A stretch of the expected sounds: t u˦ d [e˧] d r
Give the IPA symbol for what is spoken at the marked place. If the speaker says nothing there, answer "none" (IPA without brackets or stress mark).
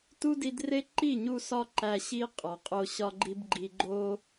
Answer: i˧